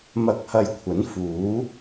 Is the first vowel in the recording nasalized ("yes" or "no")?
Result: no